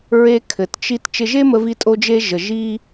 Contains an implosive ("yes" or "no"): no